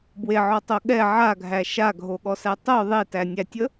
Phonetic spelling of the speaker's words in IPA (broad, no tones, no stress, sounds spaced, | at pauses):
b w e ʕ ɔ tˤ o ɠ ɛ ʕ a ɡʱ æ ʃ a ɡʱ o ɠ ɔ s æ tˤ o ðˤ e t æ nʲ æ tʲ ə